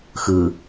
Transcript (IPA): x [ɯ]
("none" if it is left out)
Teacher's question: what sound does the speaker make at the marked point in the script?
ɯ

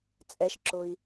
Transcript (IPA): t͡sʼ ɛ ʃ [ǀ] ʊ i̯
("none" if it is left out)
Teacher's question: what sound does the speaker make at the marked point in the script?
ǁ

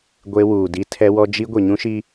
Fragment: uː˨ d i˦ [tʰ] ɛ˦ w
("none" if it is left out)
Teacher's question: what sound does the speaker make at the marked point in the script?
tʰ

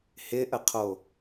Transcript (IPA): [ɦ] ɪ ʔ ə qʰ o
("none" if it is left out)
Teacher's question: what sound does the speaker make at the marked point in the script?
h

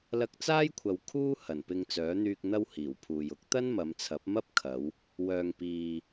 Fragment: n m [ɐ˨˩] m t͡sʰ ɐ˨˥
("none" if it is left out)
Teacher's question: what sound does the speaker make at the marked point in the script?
ɐ˨˧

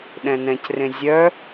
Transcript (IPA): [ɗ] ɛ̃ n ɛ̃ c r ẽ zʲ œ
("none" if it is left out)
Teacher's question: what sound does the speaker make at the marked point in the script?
ɗ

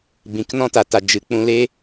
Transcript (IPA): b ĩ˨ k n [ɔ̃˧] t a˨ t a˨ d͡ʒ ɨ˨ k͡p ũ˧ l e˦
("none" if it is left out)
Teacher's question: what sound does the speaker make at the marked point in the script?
ɔ̃˧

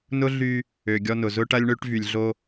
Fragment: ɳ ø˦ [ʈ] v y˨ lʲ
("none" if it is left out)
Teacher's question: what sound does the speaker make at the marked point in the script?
ʈ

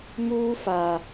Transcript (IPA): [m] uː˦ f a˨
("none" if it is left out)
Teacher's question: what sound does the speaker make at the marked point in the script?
m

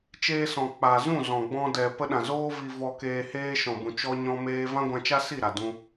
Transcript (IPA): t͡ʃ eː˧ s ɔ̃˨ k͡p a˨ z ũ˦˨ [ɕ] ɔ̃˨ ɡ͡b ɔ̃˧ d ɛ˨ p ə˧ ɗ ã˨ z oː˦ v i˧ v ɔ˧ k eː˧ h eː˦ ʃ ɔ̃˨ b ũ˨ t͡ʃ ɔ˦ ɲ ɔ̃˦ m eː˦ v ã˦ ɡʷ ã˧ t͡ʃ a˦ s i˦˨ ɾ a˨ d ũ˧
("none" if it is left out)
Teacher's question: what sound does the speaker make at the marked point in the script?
z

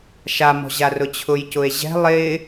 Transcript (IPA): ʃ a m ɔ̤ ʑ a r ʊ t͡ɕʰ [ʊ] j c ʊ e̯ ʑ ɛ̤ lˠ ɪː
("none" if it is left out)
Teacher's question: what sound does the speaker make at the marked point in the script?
ʊ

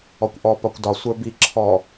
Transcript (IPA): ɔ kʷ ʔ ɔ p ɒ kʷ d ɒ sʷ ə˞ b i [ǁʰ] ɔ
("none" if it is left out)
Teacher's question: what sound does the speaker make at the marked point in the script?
ǁʰ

